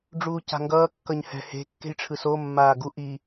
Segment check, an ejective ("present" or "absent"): absent